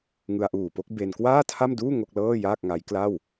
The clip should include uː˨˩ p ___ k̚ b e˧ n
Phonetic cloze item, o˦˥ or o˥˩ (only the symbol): o˥˩